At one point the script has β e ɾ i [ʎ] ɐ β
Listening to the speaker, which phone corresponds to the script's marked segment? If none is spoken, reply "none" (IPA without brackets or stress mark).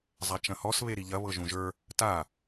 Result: ʎ